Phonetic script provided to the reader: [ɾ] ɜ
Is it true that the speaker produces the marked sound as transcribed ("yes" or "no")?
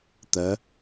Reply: no